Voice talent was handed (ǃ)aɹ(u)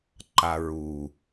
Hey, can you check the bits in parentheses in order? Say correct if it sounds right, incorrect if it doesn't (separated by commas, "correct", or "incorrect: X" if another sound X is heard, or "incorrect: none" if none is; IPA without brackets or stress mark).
correct, correct